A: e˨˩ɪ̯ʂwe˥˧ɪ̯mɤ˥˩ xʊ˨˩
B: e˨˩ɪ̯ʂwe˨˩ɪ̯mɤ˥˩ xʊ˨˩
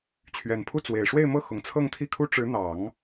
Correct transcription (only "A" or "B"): A